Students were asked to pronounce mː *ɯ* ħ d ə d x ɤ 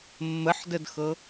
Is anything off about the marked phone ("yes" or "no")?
yes